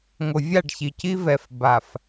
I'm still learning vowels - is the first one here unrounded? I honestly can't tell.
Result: no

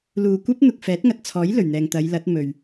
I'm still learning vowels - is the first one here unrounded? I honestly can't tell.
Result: no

